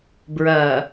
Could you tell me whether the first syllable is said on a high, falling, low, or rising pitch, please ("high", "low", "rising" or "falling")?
low